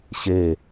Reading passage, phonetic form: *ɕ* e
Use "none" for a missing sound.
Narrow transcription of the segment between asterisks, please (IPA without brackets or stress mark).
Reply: ɕ